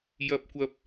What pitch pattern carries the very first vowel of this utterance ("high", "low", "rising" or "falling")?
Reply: high